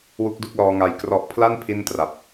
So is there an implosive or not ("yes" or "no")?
no